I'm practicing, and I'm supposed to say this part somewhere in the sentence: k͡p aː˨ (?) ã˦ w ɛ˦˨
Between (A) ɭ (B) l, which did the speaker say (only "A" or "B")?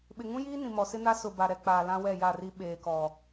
B